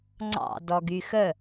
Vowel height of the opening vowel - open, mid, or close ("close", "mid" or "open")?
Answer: open